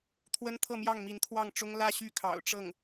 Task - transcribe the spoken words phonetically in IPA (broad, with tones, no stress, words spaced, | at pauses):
t̪ʰwə˥nt̪ʰɤ˥˧mjɑ˥˩ŋ mi˧˥nt̪ʰwɑ˥˩ŋʈ͡ʂʊ˥ŋ lä˥˧ ɕy˥˩kʰɑ̰˨˩ʊ̯ ʈ͡ʂɤ˥˩ŋ